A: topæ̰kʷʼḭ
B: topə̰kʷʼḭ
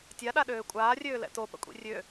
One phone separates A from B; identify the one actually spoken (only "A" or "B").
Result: B